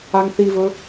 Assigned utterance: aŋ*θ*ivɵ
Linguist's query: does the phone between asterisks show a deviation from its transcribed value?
no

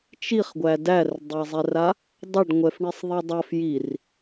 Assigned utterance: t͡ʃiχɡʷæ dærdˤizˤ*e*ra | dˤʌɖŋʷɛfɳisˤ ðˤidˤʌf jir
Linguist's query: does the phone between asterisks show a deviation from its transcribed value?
yes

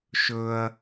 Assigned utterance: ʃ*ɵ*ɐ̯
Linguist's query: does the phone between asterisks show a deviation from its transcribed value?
no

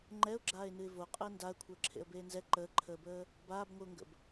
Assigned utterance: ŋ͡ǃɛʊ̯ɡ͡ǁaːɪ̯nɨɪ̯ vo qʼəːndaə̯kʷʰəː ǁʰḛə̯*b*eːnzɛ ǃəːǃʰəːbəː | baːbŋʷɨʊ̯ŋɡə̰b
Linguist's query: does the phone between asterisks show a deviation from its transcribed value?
no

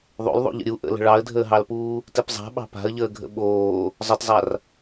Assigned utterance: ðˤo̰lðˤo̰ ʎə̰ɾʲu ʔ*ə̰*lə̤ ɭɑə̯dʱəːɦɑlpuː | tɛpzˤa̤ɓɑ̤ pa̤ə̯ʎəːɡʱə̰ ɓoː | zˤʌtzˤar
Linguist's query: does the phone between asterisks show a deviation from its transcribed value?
no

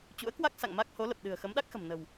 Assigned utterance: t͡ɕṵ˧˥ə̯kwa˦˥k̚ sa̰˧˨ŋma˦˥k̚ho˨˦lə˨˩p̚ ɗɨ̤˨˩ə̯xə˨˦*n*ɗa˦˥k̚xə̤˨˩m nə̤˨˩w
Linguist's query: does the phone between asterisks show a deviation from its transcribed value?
yes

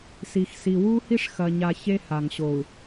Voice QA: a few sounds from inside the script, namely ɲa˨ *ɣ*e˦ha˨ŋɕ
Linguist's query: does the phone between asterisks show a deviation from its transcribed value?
yes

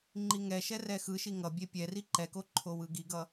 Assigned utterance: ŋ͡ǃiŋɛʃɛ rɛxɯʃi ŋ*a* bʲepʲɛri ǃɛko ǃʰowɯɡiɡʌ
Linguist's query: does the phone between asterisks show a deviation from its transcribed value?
yes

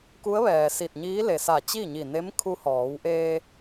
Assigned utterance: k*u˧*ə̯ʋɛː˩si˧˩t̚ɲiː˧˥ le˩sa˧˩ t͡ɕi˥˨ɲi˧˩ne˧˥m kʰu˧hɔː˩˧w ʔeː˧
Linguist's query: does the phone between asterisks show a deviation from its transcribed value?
yes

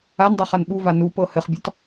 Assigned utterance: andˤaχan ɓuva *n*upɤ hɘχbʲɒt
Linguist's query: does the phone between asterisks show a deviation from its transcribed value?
no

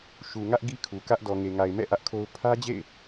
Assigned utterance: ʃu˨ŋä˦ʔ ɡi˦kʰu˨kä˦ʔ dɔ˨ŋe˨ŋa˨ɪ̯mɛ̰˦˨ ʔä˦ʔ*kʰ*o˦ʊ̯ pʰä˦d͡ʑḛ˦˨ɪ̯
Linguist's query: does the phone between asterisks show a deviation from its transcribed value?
no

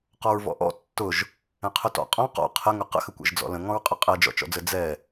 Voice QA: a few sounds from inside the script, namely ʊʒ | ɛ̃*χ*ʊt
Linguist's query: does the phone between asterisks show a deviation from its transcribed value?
yes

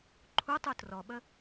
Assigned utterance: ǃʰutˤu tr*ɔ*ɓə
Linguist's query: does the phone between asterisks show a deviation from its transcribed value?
no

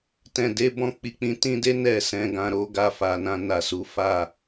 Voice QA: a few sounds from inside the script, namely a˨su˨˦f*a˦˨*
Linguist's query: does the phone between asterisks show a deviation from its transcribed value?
no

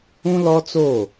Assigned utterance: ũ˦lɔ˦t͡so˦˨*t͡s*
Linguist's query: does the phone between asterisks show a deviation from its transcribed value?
yes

